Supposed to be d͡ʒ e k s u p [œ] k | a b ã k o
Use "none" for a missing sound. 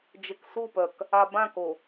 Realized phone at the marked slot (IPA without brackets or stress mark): œ